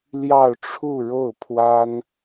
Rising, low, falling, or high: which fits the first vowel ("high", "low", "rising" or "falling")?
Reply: falling